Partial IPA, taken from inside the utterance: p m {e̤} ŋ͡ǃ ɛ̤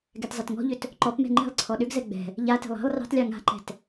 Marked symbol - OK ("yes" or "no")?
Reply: no